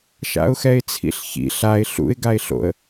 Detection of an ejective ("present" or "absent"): absent